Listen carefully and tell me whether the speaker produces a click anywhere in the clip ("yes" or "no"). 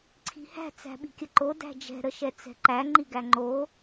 yes